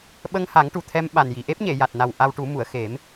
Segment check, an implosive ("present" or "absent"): present